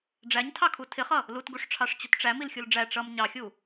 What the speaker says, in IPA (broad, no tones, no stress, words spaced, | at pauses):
ɖ͡ʐæɲtʰɑkʰu tʰɪχʌ | lutɡuʂʈ͡ʂʰɑʂt͡ɕʊt ʈ͡ʂæmilxʲul ɖ͡ʐæ ʈ͡ʂʌm ɲɑxʲu